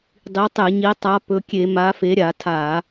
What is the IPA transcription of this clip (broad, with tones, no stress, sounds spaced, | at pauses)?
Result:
dˤ i˨˦ tˤ e˧˩˧ ɲ i˨˦ tˤ a˨˦ p ɵ˨˦ kʲ e˧˩˧ m a˨˦ f e˨˦ ɾʲ a˧˩˧ tʰ a˧˩˧